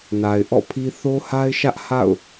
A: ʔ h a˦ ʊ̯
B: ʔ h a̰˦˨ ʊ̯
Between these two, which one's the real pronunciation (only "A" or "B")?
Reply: B